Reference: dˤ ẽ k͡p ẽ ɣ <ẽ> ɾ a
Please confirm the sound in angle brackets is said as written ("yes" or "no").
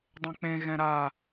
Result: no